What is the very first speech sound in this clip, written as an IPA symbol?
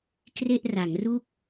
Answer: k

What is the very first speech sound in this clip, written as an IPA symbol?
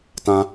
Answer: t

